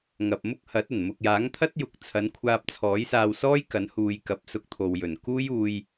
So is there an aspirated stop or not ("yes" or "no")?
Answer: yes